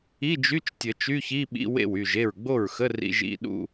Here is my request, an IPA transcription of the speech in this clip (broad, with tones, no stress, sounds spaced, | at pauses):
i˧˥˧ d͡ʒ y˧˥˧ t͡ʃ tʲ ə˨˩˦ t͡ʃ y˧˥˧ ç i˧˥˧ ɓ ḭ˧˥˧ w ḛ˥˩ w y˥˩ ʒ e˥˩ ɹ ɡ͡b o˥˩ ɹ x ə˧˥˧ r ḭ˧˥˧ ʒ ḭ˧˥˧ ɗ ṵ˥˧